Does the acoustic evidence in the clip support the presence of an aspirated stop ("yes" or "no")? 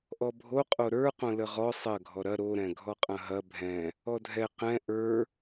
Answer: no